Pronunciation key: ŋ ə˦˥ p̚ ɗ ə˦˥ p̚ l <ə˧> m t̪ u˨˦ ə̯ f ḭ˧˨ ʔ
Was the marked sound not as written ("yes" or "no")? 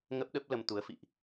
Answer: no